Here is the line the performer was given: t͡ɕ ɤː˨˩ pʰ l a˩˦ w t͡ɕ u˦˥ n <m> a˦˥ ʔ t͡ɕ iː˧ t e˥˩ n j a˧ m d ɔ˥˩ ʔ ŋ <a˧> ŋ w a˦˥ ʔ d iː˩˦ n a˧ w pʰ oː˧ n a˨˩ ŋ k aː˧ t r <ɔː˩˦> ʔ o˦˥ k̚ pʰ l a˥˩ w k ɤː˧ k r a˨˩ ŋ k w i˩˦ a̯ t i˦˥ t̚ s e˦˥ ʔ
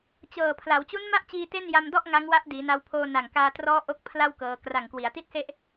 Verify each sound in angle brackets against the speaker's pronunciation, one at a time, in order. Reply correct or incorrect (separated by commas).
correct, incorrect, incorrect